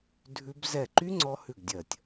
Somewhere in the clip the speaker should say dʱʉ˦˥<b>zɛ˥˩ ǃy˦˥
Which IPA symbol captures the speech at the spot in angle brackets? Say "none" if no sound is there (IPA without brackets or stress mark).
b